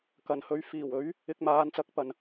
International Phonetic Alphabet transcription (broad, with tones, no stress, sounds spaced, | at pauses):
k ɐ˨˩ n h ɵ˨˥ ɥ f iː˨˩ w ɵ˨˥ ɥ | ɪ˧ k̚ m aː˨˥ n t͡s ɐ˨˥ k̚ p ɐ˨ n